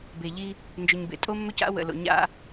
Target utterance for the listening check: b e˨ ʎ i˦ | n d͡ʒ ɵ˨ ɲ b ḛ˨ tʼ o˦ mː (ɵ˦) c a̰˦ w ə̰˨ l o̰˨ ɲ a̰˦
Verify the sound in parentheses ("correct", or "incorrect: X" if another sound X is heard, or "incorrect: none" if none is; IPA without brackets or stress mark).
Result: correct